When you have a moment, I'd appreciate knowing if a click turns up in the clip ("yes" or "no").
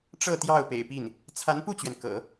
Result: no